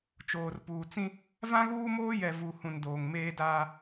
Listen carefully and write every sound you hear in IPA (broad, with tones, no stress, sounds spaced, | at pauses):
t͡ʃ oː˨ r p uː˨ t͡s ĩ˦ | v ã˦ ɣ uː˦ m oː˦ j ɛ˨ v u˨ h ũ˨ n d oː˨ ŋ m eː˦ d aː˦